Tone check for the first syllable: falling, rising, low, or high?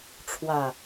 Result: low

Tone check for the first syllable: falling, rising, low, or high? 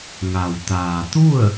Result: low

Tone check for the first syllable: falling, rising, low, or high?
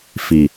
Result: low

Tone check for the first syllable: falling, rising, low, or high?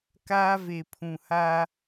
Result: high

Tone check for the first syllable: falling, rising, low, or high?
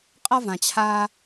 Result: high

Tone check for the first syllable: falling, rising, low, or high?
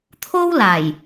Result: high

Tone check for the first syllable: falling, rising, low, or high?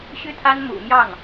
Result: high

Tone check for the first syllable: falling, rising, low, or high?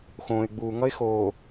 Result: low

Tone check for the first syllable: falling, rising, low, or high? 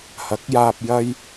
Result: rising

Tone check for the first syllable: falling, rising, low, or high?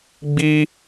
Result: high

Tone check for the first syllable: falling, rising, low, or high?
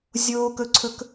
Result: high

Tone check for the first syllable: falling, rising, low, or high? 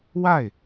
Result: falling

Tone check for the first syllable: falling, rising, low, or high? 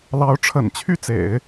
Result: rising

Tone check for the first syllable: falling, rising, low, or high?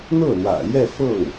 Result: falling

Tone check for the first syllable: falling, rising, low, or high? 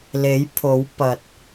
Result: rising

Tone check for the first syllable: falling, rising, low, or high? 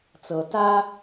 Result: low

